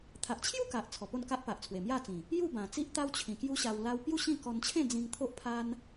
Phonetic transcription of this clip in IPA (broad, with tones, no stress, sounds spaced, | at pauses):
t̪ʰ a˨ ʔ t͡ɕʰ j u˥˧ k a˨ ʔ t͡sʰ ɔ˨˩ p o˥˧ n k a˦ ʔ p a˨ ʔ t͡sʰ w e˨˩ m j a˥˧ t͡s ĩ˨˩ | j u˥˧ b ã˨˩ t͡s i˦ ʔ t̪ a˦ w t͡ɕʰ ĩ˨˩ k j u˦ ɕ a˧ w l a˦ w p j u˥˧ ɕ ĩ˥˧ k ɔ˧ n t͡ɕʰ ẽ˥˧ d͡z ĩ˧ ŋ t̪ʰ o˦ ʔ pʰ a˦ n